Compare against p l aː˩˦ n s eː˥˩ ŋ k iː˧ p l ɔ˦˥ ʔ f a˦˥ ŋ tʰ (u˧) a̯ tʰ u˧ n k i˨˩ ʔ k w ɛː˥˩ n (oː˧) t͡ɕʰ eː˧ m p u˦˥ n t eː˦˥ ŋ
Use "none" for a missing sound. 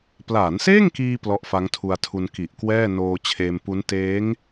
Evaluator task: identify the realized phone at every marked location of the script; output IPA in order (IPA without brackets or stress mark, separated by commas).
u˧, oː˧